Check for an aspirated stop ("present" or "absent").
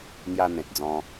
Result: absent